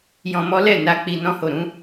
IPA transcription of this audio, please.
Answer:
j ɔ̃˧ m ɔ˦ l ɛ˦˨ n a˧ k͡p i˧ n ɔ̃˦ h o˦˨ ɾ ũ˨˦

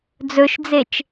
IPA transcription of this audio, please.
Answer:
d͡z ɵ ʃ d͡z e t͡ʃ

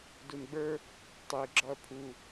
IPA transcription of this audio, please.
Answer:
d u n ɡ͡b ə˞ | tˤ e ɡ͡ǁ ɒ ɐ̯ pʰ u

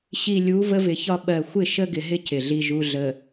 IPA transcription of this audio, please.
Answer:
ɕ i˨ lʲ u˨˦ v ə˦ v ɪ˨˦ ç ɒ˦ ɓ ɜ˨ xʷ ɪ˦˨ ʃ ə˦ ɡ ɪ˨ ɦ ɪ˦ c ɪ˨ ɮ i˦ ʒ u˦ ɮ ə˨

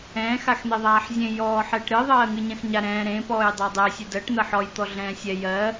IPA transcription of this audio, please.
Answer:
ɛ̃ː x a x n̪ e ðˤ aː ħ zʲ ẽ j ɔː ħ ɛ ʈ ɾ ɨ ðˤ ɜː ŋ ɨ ɲ ɛ̃ x ɲ a ɾ ɛ̃ː ɾ ẽ p ɔː j dˤ a dˤ e sʲ ɨ d ɜ ʈ n̪ ɜ ħ ɔ j t̪ ɔ ɮ ɛ̃ː sʲ ɛ j ɜ

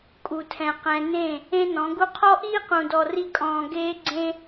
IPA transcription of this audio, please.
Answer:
kʼ u˨ tʰ ɛ̃˨ q ɛ̃˨ n ẽ˦˨ | ẽ˦ n ɔ̃˨˦ ɡ u˦ qʰ ɔ˦ ʔ iː˦ q ũ˨ d ɔ˨ r i˦ kʼ ɔ̃ː˧ ɡ eː˦ ɡ͡ǀ ẽ˦

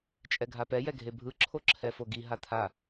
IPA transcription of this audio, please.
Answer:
t͡ʃʼ ɛ ɡʱ a p ɛ j ɛ ɡʱ e bʱ ɯ ǁʰ o ǁʰ ɛ f o ɡ i ɦ a t̪ʰ a

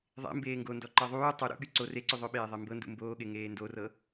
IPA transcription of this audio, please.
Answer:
ðˤ ḛ m b eː ŋ ɡ o n d ɔ ǃ ɤ ðˤ uː tˤ u ɾ ṵ ɠ y ǀ o r e ǀ y ðˤ ɵ ɓ eː ðˤ e m b ɤ n d ṵ m b oː ɠ e ŋ eː n d o r ɤ

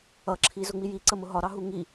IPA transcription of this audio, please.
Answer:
ʌ ǁʰ i z ʊ ŋ͡m i j i ǀ ə m ʊ ɦ ɒ ɾ ɑ ɦ u ŋ i

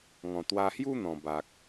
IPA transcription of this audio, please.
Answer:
ŋ ɔ̃˨˩ t̪ w a˧ h j u˦ n̪ ɔ̃˨˩ b a˨ k̚

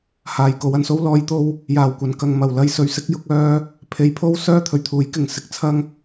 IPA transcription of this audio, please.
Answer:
h aː˨ j k o˨˧ w ɐ˧ n s o˥ w l ɔː˨˧ j t̪ o˧ w | j aː˨˩ w kʷ ɐ˨ n k ɐ˨ ŋ m ɐ˨˩ w l ɐ˧ j s ɵ˨ ɥ s ɪ˥ k̚ j ʊ˨˥ k̚ œː˥ | pʰ e˨˧ j pʰ o˥ w s œː˥ t̪ʰ ɵ˨ ɥ t̪ʰ uː˨˥ j k ɪ˨ ŋ s ɪ˨˥ k̚ t͡sʰ ɐ˧ ŋ

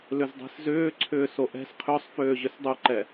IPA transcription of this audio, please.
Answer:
l ʏ z dˤ i̤ s z ʏː ǀʰ ʏː s o ʔ ɛ̤ s qʰ ʏ sˤ f øː ʑ ʏ s dˤ ʊ ǃ ɛ

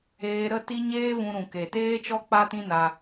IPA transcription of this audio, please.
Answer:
eː˧ ɾ ə˦ t i˦ ɲ eː˦ v ũ˧ ɾ ũ˨ k e˨ t eː˦ t͡ʃ ɔ˦ k͡p a˦ t ĩ˦ n a˧

